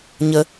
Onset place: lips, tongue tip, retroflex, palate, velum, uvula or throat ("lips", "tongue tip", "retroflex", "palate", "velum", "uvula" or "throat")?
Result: palate